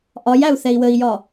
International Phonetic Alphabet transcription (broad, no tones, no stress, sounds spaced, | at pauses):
ʔ ɒ j æ u̯ θ ɛ i̯ w ə i̯ j ɒ